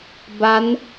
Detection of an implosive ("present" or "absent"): absent